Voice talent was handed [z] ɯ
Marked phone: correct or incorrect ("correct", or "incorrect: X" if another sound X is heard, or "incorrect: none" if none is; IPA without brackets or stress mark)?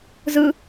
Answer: correct